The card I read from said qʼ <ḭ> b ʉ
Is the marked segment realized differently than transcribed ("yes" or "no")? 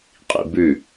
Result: no